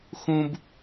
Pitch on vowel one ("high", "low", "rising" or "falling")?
high